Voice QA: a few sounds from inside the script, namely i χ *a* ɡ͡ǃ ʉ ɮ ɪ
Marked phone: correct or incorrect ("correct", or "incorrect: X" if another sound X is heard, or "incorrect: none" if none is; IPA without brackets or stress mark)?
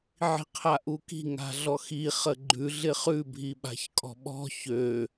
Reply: incorrect: ə